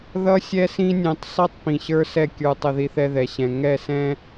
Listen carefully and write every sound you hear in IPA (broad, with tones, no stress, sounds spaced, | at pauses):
ð ʌ˦ sʲ ɛ˦ s ĩ˦ nʲ ɛ̃˧ tˤ sˤ i˦ tˤ p ĩ˨ ɕ ə˞˦ s ɛ˦˨ kʲ ə˞˧ tˤ ʌ˧ ð i˧ θ ɛ˧ ð ɛ˨ ɕ ɛ̃˨ ŋ ɛ˦˨ s ɛ̃˦